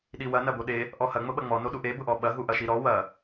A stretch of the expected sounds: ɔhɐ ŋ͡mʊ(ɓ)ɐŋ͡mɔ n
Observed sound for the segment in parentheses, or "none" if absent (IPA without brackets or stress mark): ɓ